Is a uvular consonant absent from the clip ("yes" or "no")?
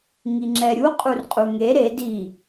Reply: no